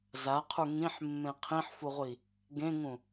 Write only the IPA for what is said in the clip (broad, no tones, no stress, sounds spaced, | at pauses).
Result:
z a qʰ u ŋ ĩ ħ mː ẽ qʰ ĩ ħ f u ʁʷ i | ɡ ẽ ŋ ũ